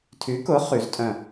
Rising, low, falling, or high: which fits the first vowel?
rising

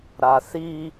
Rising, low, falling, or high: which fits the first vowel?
low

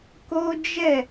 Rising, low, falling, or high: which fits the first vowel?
high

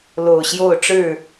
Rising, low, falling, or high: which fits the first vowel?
low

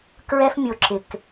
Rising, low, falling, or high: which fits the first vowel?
high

